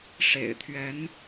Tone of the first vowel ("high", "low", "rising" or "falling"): low